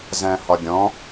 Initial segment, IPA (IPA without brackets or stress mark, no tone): z